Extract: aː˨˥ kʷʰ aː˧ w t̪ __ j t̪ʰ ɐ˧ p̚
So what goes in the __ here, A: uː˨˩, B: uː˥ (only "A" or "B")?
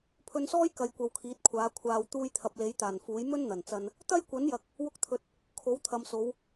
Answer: B